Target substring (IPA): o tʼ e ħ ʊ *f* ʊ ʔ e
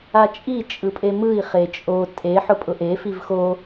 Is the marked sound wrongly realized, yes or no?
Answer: yes